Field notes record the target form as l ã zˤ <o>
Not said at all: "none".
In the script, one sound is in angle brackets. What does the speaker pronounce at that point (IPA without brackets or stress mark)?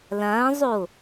o